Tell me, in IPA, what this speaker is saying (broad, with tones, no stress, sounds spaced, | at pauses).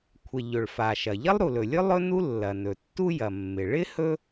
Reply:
kʷʰ ɪ˩ ʎ ɵ˩ ɭ f a˩ ʃ ɐ˩ ʎ ɐ˥ lˠ ɾ u˩ l ɵ˩ lʲ ɵ˥ lˠ ɵ˥ n u˥ lː ɐ˩ n ɵ˩ tː u˥ j ɐ˩ mː ɪ˩ ɭ ɪ˥ h ɵ˥